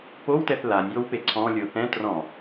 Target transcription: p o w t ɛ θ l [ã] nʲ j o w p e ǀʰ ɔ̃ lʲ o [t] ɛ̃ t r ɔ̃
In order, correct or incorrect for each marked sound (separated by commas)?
incorrect, incorrect